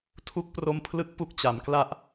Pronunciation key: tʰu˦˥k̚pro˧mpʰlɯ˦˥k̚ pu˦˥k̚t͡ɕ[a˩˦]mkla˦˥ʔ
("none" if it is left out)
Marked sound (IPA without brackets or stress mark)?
a˩˦